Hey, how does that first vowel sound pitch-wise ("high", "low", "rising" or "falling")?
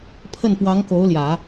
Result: falling